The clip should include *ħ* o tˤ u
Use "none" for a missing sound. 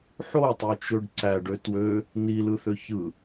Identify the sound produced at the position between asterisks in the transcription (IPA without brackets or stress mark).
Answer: ħ